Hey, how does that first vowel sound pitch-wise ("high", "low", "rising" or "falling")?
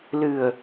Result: low